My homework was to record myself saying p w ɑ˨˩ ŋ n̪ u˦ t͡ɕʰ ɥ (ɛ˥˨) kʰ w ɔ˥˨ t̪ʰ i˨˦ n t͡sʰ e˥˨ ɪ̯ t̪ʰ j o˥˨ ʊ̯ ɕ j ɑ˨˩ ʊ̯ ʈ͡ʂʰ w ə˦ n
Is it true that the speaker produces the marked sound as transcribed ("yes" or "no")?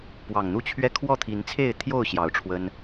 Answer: yes